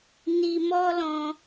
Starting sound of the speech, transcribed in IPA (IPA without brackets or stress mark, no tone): n